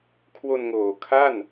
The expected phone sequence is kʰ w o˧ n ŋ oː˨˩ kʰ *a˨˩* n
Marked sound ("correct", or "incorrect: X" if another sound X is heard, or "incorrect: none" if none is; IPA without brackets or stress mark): incorrect: a˥˩